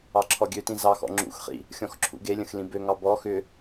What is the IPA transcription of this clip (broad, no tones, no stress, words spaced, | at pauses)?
ɑǁʰɔɡʲøtĩ zɑxɔ̰ ŋ͡ǁṵxχḭ | xʲɔ̃xǁʰṵɡelʲə̃x lĩbøŋɑ bɔ xʏ